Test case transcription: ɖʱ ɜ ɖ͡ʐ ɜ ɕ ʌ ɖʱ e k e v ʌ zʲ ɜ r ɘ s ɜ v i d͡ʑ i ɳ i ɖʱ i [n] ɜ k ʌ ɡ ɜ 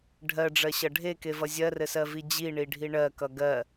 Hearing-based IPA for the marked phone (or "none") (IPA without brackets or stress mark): ɳ